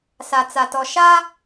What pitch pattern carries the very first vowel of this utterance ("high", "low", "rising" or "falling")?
low